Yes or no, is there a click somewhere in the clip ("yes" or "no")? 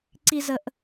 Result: yes